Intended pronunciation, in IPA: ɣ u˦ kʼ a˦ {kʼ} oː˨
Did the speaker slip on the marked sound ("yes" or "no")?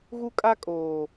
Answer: no